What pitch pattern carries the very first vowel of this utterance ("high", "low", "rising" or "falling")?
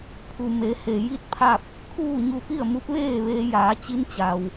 low